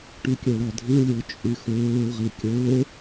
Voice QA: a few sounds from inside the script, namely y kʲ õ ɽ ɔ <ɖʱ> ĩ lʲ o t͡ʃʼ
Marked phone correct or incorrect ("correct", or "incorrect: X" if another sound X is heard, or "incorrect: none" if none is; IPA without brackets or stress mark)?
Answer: incorrect: dʱ